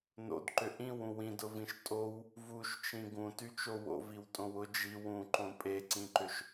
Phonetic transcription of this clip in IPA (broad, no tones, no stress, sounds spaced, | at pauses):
n o̰ d ǃ ʏ ʔ ĩ w ũ w ĩ d ʊ v ĩ ʃ tʼ o w | v u ʃ t͡ʃ ĩ ɡ ũ t y t͡ʃ o w o̰ v i w tʼ õ w ʊ d͡ʒ i w ũ ǃ õ pʼ e ǀ ĩ ǃ ʏ ʃ